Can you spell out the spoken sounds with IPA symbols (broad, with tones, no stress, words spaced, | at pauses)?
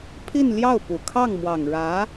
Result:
pʰi˥˧nljɑ˥˩ʊ̯pu˨˩ kʰɑ˥˩ŋmwɑ˨˩ŋɻä˧˥